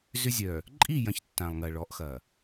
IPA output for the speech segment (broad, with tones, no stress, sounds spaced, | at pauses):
z ʏ˦ zʲ œ˨ | ǃʼ i˦˨ j ɐ̃˨ ç tː ã˨ lˠ ŋ ɐ˨ ɭ ɔ˨˦ ʔ x ɐ˨